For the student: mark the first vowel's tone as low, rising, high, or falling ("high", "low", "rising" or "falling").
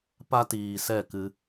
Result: high